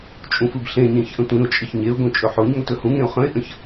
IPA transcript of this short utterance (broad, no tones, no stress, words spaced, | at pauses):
t͡ʃʼũfɯbɬẽɲẽç ʔə̃tʷĩʊ̯t͡ʃʼəç ɲeʊ̯ɡõ t͡ʃʼɵħoɲŋot ɵhũŋẽʊ̯ χə̃ɪ̯ʔə̃ç